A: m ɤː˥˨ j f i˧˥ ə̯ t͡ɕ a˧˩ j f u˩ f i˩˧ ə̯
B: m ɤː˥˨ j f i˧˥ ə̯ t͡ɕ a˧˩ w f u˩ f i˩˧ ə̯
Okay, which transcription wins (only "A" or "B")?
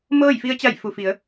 A